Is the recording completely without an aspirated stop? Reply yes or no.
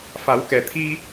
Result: no